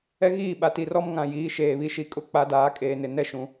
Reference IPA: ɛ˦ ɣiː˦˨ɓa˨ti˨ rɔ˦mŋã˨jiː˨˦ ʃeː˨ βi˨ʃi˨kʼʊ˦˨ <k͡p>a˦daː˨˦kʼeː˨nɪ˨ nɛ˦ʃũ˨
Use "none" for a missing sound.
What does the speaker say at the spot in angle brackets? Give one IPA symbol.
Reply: k͡p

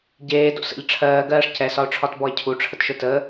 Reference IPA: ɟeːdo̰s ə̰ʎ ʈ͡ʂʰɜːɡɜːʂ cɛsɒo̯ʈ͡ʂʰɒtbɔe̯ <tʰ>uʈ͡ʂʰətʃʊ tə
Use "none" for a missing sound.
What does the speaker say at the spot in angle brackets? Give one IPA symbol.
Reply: cʰ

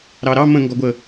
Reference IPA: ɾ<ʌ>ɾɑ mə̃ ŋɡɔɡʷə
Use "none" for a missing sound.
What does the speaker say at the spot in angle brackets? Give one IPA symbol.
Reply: ɑ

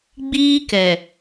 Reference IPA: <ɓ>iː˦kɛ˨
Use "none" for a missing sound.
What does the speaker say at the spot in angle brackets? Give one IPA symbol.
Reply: ɡ͡b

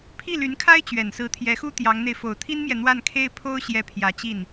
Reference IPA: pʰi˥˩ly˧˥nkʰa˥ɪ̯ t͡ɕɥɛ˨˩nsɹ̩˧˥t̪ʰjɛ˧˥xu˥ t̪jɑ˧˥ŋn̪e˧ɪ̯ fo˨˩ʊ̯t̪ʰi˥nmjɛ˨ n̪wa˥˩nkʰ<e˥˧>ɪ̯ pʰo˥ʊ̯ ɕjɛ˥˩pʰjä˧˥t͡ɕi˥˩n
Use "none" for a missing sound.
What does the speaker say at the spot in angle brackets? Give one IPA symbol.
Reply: e˥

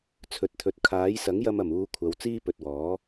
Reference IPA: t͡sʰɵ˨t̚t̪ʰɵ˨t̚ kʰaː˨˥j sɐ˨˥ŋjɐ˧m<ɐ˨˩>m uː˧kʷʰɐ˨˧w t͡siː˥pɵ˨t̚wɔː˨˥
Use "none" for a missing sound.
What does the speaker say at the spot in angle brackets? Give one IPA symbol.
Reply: ɐ˨˩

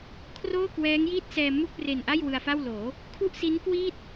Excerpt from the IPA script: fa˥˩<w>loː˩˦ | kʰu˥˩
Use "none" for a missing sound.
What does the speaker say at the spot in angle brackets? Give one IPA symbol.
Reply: w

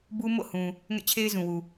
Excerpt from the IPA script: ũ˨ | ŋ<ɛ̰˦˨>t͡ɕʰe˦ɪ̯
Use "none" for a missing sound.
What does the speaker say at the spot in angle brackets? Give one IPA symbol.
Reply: ɛ̰˦˨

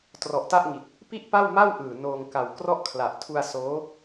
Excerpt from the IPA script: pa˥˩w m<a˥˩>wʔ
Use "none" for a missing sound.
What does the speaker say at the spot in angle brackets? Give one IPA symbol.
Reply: a˥˩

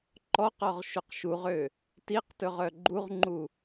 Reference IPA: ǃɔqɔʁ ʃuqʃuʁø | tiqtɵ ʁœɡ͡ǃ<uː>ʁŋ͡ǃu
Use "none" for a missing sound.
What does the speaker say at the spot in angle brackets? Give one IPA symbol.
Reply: u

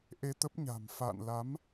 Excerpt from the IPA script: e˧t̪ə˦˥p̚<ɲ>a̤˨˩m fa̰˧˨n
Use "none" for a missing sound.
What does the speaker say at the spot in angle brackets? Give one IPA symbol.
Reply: ɲ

